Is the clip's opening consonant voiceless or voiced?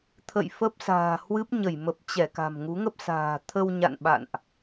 voiceless